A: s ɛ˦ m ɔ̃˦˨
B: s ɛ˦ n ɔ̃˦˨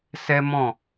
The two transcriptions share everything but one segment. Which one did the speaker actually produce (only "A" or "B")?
A